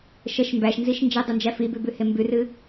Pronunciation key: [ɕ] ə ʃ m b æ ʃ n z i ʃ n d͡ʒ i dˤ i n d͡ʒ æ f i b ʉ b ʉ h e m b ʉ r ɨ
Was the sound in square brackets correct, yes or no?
no